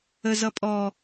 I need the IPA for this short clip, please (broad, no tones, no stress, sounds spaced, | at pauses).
ə z ʌ pʼ ɔ